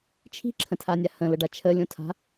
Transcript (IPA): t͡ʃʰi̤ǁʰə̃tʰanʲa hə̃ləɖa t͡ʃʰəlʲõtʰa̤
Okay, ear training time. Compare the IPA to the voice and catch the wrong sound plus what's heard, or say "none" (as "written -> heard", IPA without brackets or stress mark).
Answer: none